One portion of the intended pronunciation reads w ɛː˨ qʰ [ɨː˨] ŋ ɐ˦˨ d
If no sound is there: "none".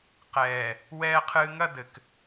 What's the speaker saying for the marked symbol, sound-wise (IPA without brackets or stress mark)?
ɨː˨